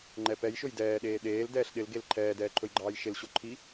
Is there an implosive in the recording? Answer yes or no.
yes